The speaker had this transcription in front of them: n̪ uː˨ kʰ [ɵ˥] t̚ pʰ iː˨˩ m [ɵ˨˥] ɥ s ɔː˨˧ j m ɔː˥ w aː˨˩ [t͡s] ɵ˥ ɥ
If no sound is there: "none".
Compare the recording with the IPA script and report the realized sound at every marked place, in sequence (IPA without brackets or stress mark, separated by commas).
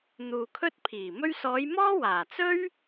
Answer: ɵ˥, ɵ˥, t͡s